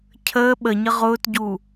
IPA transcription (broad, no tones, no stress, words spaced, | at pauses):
cʰəː ɓəɲə ʁʊːtɟu